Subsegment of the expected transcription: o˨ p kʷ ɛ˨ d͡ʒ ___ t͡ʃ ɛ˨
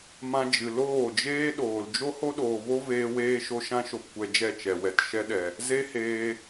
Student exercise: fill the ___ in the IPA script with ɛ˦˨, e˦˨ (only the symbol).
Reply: ɛ˦˨